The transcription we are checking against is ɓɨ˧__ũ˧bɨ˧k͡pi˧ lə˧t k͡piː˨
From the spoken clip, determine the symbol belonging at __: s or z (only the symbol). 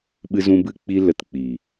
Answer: z